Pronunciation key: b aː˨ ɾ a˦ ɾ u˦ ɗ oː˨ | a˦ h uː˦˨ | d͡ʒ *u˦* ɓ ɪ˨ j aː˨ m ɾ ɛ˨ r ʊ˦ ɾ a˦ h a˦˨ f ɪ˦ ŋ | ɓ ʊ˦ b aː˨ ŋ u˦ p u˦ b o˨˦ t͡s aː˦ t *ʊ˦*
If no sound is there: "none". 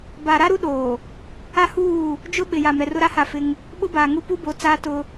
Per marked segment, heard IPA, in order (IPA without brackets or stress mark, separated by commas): ʊ˦, ʊ˦